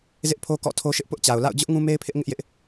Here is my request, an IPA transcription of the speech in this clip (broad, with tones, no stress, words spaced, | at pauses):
zɪ˦ʔpʰo˦ kɔ̰˦˨ tʰo˦ʃɪ˦ʔ pʊ˦ʔt͡ɕa˨ʊ̯ la̰˦˨ʊ̯d͡ʑʊ˦ʔ ŋũ˦me˦ɪ̯pʰɪ˦ʔ ŋɪ˦ʔjɪ˦ʔ